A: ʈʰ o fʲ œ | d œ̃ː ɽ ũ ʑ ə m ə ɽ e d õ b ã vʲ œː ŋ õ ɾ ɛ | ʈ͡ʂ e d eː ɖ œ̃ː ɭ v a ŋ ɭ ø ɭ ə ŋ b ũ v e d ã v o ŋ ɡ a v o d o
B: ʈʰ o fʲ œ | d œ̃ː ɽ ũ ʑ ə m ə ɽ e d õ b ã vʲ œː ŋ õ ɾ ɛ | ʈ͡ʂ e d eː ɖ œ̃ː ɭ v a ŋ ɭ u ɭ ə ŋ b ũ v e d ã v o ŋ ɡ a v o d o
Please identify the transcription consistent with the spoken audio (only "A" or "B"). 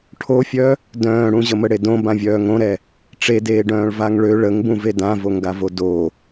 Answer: A